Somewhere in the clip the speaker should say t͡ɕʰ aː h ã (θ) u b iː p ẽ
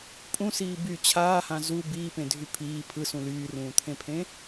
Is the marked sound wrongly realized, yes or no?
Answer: yes